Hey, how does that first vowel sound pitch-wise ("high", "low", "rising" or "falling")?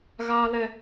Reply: high